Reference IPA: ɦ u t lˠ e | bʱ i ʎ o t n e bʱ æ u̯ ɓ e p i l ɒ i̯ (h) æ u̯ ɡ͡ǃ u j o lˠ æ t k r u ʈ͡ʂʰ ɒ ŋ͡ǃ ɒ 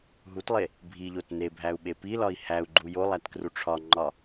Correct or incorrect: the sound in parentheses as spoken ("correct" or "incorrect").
correct